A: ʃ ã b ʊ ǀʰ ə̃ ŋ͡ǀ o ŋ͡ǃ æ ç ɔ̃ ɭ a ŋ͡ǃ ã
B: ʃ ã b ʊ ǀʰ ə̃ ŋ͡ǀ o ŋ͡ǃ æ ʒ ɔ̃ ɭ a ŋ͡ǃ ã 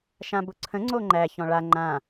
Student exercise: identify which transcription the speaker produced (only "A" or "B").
A